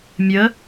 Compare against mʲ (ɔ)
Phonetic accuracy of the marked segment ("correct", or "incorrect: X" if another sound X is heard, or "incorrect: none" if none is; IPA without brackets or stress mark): incorrect: ə